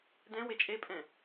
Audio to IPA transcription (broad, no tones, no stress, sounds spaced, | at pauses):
d ɛ̃ w e t͡ʃʼ e pʼ ɛ̃